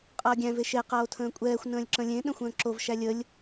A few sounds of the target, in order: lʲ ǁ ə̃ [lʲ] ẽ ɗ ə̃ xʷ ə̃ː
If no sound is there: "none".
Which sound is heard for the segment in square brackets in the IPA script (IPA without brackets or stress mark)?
lʲ